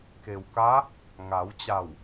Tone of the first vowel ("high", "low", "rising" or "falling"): low